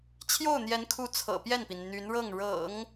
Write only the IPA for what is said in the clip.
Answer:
t͡ɕʰjo˥˩ʊ̯n̪jɛ˧˥n kʰu˧˥ t͡sʰɤ̰˨˩pjɛ˥˩npi˩n n̪y˧˥nɻɤ˥˩ŋ ɻɤ̰˨˩˦ŋ

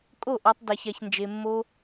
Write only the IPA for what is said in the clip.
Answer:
kʼo˦˨ʔɔ˧tˤ da˧ça˧çnd͡ʒe˧mːo˦

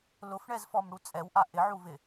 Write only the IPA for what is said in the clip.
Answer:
lʊfɳɛzfɔmɽu t͡sʼɛwʔa ʔɪʕuvɪ

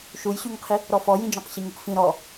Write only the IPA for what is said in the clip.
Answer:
ʃujɕʉŋqʰi | ɾɔfɔjĩd͡ʒɔ̃q ɕiŋupfĩ ɾɔ

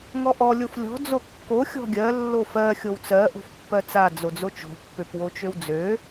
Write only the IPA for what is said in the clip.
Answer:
ŋɔʔɔ lʲoflʲɔ̤ d͡zokːo xʲɔ̤ɡʲɜ lːofɜ xʲowt͡sɜ ʔo̤fpːɜt͡sa d͡zod͡zot͡ʃo̤ pːøpwot͡ʃøwd͡zø

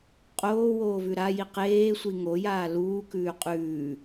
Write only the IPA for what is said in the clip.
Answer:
qʼoːwoːvʉ ɾaji qeːsʷi ŋojaː luːkʉː qʼʉː

